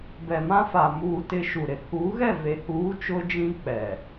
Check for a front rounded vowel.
absent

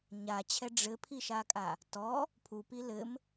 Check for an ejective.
present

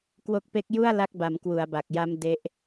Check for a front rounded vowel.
absent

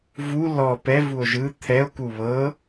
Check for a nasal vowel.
absent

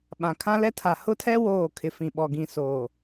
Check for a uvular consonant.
absent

